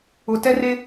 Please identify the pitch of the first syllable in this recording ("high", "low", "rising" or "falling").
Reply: low